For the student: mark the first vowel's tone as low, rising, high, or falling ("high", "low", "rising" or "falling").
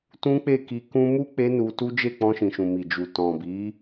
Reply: high